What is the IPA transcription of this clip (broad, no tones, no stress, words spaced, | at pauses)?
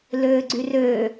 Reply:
løːɡ͡ǀyrøː